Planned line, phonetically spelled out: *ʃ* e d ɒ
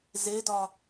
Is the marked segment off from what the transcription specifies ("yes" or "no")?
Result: yes